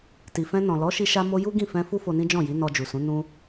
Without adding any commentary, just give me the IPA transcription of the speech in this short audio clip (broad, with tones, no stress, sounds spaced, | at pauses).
t i˨ f ɛ̃˧ n ɔ̃˨ l ɔ˨˦ ʃ i˧ ʃ a˧ m o˦ j u˦ ɡ ĩ˦˨ f ɛ̃˧ f u˦ f o˧ n ĩ˦ d͡ʒ ɔ̃˦˨ j i˨˦ n ɔ˧ d͡ʒ u˨ s ũ˨˦ n ũ˦